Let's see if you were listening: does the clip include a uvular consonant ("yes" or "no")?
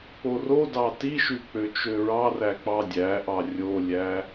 no